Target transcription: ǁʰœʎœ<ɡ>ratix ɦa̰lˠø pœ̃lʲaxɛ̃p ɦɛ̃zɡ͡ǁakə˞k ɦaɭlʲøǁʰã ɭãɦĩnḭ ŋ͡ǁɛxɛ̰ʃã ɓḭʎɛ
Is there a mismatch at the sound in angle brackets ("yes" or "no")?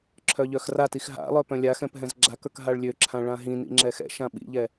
yes